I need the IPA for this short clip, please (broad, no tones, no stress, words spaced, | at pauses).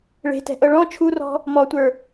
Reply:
ɭe̤tɛ̤ʔɤ ɭɔ̃ t͡ʃʰurɔ̤ | mɔtʷə˞